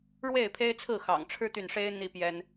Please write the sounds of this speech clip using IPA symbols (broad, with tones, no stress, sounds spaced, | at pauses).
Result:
ɻ w e˥˨ ɪ̯ pʰ e˦ ɪ̯ t͡sʰ ɹ̩˥˨ x ɑ̰˨˩ ŋ ʈ͡ʂʰ ɻ̩˦ t̪ y˨ n ʂ e˦ ɪ̯ n̪ i˦ p j ɛ˦ n